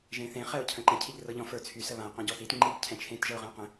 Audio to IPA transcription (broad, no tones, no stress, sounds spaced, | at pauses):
ʒ ẽ θ ẽ χ ɛ ʊ̯ cʰ ə̃ ǃ ə̃ cʰ i ʎ r ɤ ʎ ɔ̃ f ə˞ t͡sʰ y s ə β ã ɪ̯ q ɔ̃ ɟ ɔ θ i t ŋ͡ǃ i ɡ cʰ ɛ̃ t͡ʃʰ ẽ t ʒ ɤ ʊ̯ ʁ ə̃ ʊ̯ q ə̃